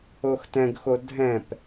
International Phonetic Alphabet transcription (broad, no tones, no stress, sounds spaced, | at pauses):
o x t ɛ̃ ɡ x o dʱ ɛ̃ p